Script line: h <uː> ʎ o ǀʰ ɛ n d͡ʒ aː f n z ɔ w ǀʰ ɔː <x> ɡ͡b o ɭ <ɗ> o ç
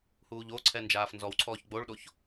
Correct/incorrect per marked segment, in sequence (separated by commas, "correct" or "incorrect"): correct, incorrect, correct